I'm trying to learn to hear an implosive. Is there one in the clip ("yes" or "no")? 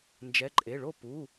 no